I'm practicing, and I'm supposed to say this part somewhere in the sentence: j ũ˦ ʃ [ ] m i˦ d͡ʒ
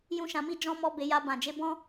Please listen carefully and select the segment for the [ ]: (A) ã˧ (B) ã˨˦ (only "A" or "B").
A